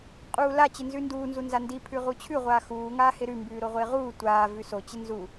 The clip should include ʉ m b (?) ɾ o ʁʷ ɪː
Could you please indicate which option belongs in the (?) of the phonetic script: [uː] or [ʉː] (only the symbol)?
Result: ʉː